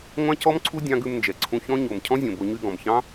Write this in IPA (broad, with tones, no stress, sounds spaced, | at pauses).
ŋʷ ɑ̃˦ c ɔ˦ m ǀʰ u˦ dʲ ɑ̃˦ ɡ ʉ˧ m n d͡ʒ ɛ˨ ǀʰ ũ˧ ç ɔ̃˦ ɲ o˨ m cʰ ɔ̃˦ zʲ õ˨ b o˧ ɲ y˧ ɡ ɔ̃˨ m ç ɑ̃˦